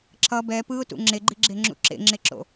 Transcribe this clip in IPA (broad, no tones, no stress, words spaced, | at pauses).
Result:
ǁʌ bɛ pɯʊ̯tṵ ŋ͡ǁeɡ͡ǃiɡ͡ǁeŋ͡ǁṵ ǁḛŋ͡ǁeǁo̰